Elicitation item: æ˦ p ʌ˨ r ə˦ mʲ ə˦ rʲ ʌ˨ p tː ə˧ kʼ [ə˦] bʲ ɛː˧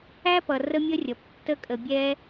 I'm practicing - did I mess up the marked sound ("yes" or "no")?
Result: yes